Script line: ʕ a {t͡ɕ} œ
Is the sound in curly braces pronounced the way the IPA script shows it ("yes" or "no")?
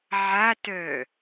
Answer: no